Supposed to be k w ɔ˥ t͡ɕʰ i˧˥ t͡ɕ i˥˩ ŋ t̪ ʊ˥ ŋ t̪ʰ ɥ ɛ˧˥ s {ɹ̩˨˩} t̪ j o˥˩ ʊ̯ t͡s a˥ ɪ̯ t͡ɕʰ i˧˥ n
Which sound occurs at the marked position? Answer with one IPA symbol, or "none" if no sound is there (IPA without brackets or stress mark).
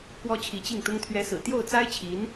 ɹ̩˨˩